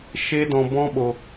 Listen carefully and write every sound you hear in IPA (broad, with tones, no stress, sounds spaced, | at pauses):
ʃ e˦ d ɔ̃˧ b ɔ̃˦ ɓ o˧